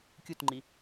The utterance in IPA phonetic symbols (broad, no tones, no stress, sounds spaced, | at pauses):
kʲ u t ŋ͡ǃ i